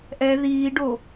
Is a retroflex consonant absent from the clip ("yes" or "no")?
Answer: no